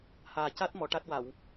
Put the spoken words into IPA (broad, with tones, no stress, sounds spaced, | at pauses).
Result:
h aː˨˩ c a˦˥ t̚ m ɔ˨˩˦ ʈ a˦˥ t̚ w a˨˩˨ w